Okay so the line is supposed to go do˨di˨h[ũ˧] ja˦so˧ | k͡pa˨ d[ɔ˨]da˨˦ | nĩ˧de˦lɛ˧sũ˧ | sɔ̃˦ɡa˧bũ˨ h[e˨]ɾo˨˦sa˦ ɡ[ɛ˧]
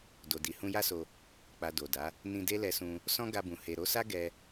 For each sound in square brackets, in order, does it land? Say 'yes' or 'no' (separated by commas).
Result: yes, no, yes, yes